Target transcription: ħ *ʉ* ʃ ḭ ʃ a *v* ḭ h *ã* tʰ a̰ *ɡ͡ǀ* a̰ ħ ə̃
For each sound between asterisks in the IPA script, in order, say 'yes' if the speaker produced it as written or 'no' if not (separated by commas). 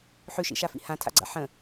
yes, no, yes, yes